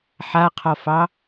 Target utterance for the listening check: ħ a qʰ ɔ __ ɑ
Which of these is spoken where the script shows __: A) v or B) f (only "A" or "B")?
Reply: B